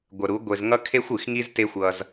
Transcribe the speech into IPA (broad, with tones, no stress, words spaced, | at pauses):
ɡʷə˨ɾu˨˦ ɡʷe˧z ŋʌ˦ kʰe˦xʷɨ˨xŋi˦zte˦ xʷʌ˧z